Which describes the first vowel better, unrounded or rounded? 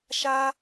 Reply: unrounded